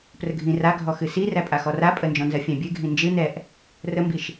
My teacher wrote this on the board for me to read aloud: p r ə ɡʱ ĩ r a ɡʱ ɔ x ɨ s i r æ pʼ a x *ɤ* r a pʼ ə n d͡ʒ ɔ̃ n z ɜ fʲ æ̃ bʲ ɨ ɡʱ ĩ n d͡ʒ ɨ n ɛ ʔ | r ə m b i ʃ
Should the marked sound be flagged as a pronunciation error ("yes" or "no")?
yes